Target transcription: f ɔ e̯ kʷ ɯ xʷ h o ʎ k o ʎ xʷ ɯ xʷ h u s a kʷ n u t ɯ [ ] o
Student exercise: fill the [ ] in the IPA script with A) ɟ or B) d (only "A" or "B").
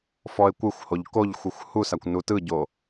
A